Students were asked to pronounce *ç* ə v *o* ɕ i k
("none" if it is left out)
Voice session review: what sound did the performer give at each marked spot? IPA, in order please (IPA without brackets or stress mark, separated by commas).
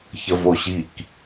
ç, o